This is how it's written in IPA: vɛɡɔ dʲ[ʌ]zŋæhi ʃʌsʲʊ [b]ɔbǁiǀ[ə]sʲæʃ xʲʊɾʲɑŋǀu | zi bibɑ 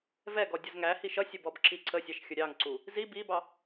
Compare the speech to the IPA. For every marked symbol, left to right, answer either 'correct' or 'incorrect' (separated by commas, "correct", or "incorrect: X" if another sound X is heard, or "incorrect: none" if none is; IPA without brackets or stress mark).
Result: correct, correct, correct